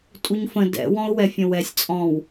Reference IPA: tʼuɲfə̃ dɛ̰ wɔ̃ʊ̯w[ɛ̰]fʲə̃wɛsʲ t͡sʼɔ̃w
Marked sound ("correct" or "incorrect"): incorrect